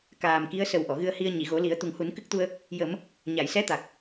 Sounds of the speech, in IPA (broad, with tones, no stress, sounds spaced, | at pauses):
k aː˨˩ m k i˧˥ ə̯ s ə˨˩˦ w ʔ ɔ˨˩˨ ɣ ɨ˧ ə̯ h i˧ ə̯ ɲ i˨˩˨ ɣ o˨˩˦ l i˨˩˦ ə̯ t̪ u˨˩ ŋ h u˨˩˦ n k ɨ˦˥ k̚ t̪ u˧ ə̯ | j ə˨˩˦ m | ɲ a˨˩˨ j s ɛ˧˥ t̪ a˨˩ k̚